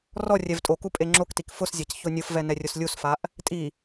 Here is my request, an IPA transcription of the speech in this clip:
r ɔ rʲ ɛ v tʼ o k u pʼ e ŋ͡ǁ o k t i k f ʊ s zʲ a c ç o nʲ ʊ f v ɛ n ɛ rʲ ʊ s lʲ u s f a ʔ | tʼ i

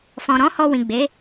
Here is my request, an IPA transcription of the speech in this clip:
f ɔ̃˨ ɾ ɔ̃˨˦ h ɔ˧ w ĩ˨ ɡ͡b e˨˦

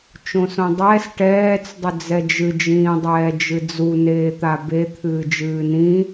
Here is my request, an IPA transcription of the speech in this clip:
t͡ʃ õ s õ dˤ ɛː s ʈ ɛː t͡s dˤ ʏ d͡z ɛ d͡ʒ ɨ d͡ʒ ĩː dˤ ɛː d͡ʒ ɨ d͡z u n eː t̪ a b e t̪ʰ ɨː d͡ʒ ɨː n ĩ

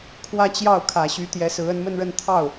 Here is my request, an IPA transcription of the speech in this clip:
kʰ w ä˥˧ t͡ɕ j ɑ˥˩ ʊ̯ kʰ ä˨˩ ɕ y˧˥ t̪ j ɛ˧˥ s ɹ̩˧˥ ə˧˥ n m ə˥˧ n ɻ ə˥˧ n t̪ʰ ɑ˥˩ ʊ̯

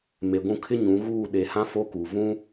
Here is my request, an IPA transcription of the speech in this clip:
m e˨ ɡʷ ũ˦˨ kʰ ɪ˦ ɲ ũ˨˦ ɣ uː˦˨ ɗ e˨ h ã˦ f o˦ k uː˨ v ũ˦

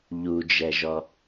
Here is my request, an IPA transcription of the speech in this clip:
ʎ u d͡ʒ ɛ ʒ ɔ

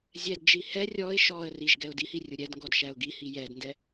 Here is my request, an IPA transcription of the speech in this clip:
zʲ ɛ d d͡ʒ i h ɛ rʲ ɔ ɪ̯ ʃ ɔ ə̯ r i ʒ ɡ ɛ ʊ̯ d i h i rʲ ʊ ɾʲ ɛ d ŋ ɡ ɔ d ʃ æ ʊ̯ ɡ i h i j ɛ d n d ɛ

